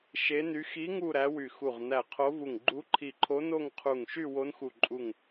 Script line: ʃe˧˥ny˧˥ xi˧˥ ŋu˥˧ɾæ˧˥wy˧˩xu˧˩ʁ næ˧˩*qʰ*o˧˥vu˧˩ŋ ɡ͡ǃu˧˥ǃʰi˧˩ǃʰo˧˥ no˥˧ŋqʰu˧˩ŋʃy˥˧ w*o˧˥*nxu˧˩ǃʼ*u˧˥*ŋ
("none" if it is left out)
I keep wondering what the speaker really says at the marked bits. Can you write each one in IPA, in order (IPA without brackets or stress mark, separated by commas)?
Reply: qʰ, o˧˥, u˧˩